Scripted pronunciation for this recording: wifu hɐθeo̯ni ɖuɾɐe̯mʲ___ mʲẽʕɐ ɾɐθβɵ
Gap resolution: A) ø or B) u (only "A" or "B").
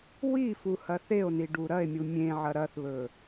B